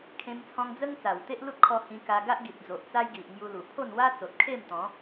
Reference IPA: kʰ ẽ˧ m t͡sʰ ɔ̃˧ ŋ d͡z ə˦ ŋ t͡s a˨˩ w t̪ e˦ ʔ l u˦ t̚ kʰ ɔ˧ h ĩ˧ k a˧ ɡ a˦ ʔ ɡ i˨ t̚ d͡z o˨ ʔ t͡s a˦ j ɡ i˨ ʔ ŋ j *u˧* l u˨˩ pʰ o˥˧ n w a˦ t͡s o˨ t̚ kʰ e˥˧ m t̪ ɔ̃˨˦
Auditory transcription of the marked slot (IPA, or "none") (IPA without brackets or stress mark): u˧